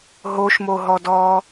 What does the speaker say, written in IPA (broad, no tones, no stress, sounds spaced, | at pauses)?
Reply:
ɦ o ʃ m o ɦ ɔ d ɔː